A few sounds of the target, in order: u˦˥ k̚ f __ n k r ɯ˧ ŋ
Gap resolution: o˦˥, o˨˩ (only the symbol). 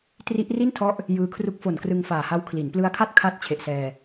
o˨˩